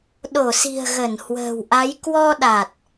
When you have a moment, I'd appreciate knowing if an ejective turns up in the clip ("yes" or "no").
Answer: no